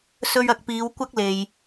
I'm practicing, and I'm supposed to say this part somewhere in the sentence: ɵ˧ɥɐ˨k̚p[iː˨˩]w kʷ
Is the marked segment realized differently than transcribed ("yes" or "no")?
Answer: yes